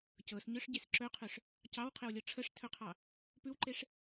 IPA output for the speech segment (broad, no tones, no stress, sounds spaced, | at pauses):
c ɤ s ɲ œ ʂ ɟ e s ǁ œ qʰ œ ʂ | c ɑ w qʰ e w lʲ ɤ ʈ͡ʂʰ ə ʂ tʰ œ qʰ ɑ | p ʉ w ǃ e ʂ